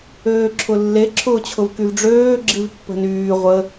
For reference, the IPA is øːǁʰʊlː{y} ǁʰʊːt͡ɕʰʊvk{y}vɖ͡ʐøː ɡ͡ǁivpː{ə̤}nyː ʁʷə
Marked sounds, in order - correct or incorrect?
incorrect: e, correct, correct

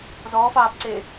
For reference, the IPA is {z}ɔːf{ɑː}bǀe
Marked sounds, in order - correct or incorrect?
correct, correct

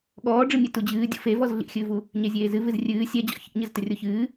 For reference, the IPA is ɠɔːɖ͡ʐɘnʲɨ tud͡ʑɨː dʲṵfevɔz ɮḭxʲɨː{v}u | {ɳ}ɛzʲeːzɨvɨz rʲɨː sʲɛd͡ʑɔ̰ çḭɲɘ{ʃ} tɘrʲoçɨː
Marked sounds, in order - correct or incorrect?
correct, incorrect: ɲ, incorrect: z

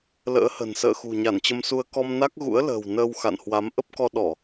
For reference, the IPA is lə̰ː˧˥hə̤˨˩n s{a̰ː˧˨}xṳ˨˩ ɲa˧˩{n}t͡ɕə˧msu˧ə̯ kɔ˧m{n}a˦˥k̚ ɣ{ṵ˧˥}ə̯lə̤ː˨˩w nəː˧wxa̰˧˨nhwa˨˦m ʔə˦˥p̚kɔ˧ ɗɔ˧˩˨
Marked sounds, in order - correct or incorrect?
incorrect: ə̰ː˧˨, correct, correct, correct

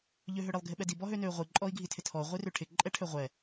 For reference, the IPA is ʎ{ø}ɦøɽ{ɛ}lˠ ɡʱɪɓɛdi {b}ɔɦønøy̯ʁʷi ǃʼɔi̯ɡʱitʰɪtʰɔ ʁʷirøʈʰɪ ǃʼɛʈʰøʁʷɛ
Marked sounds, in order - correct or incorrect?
correct, incorrect: ɪ, correct

